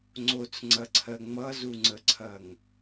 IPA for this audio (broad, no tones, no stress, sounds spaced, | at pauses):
ŋ͡ǀ o t͡s ŋ͡ǀ ɐ ǀʰ ɜ ŋ͡m ʌ z u ŋ͡ǀ ə ǀʰ ɐ ŋ